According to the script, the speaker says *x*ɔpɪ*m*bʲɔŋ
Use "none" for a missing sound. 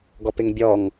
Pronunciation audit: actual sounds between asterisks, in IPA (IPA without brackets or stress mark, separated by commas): ɡ, ŋ